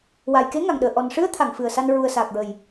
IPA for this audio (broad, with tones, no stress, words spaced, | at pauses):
wa˨˩jke˧˥ŋa˨˩ŋɗəː˨˩˨ ʔɔ˨˩n ʂɨ˧˥ə̯t̪ʰa˨˩˨ŋ fɨ˨˩ə̯sa˧n ɹu˨˩ə̯saː˨˩k̚ɹə˨˩j